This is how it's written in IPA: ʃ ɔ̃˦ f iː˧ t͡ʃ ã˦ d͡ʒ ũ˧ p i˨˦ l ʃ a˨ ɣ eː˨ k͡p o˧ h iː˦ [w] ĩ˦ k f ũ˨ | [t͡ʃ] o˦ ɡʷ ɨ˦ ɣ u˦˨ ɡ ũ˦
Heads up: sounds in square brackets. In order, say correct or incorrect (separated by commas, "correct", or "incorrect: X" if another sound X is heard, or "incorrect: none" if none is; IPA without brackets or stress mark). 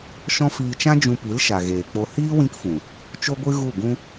correct, correct